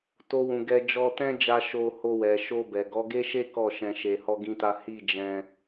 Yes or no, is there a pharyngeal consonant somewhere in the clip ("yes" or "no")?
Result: no